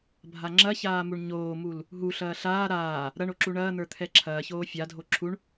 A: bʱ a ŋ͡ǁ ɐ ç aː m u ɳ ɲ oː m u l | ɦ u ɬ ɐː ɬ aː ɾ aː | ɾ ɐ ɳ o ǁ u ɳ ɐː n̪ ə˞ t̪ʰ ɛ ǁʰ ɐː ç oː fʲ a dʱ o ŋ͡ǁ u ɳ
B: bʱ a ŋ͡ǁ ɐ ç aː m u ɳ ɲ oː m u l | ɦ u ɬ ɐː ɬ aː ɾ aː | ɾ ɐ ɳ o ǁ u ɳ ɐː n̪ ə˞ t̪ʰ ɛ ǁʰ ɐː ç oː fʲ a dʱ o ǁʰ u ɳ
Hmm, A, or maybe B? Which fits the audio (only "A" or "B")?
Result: B